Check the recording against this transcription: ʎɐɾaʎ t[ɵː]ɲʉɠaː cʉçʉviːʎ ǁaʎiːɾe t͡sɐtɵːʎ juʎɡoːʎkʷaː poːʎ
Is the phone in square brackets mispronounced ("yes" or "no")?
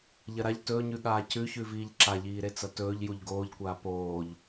no